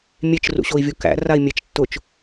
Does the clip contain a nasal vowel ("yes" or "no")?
no